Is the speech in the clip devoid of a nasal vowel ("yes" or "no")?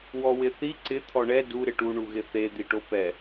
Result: yes